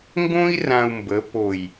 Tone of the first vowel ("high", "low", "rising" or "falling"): high